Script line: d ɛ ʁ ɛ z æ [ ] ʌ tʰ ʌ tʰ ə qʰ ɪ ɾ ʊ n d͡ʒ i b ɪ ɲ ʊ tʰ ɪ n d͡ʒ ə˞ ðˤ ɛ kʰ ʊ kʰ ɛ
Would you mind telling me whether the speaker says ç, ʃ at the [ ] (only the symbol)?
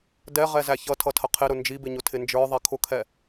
ç